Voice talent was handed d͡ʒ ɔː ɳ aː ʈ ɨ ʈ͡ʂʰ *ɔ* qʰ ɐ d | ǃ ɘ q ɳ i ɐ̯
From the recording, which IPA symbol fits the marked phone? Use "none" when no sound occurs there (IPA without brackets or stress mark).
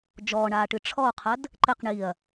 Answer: ɔ